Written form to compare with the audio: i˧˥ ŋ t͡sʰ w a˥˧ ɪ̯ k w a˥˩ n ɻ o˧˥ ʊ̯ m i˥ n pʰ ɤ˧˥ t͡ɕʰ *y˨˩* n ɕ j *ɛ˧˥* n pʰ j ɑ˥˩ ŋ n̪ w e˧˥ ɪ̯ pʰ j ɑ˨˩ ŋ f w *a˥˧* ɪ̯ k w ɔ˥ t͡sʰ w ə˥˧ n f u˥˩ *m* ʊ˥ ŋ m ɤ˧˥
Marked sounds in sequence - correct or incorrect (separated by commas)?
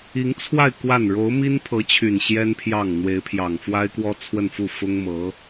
correct, incorrect, incorrect, incorrect